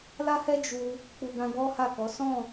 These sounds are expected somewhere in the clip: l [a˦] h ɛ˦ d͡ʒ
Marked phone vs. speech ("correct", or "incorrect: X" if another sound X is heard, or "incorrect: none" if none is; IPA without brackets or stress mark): correct